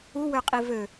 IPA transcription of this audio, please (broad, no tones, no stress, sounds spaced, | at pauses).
u w ø qʼ i v ø